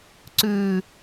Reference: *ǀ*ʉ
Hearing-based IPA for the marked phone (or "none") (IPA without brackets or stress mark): ǀ